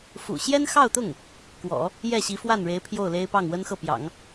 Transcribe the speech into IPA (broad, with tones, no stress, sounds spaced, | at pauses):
f ṵ˨˩ ɕ j ɛ˥ n x ɑ˥˧ ʊ̯ t̪ ʊ˥˩ ŋ | k w ɔ̰˨˩˦ | j ɛ˥˩ ɕ i˧˥ f w a˥˩ n ɻ e˧˥ ɪ̯ pʰ j o˥˩ ʊ̯ l e˥ ɪ̯ p ɑ˥˩ ŋ w ə˥ n x ɤ˥˩ p j ɑ̰˨˩˦ ŋ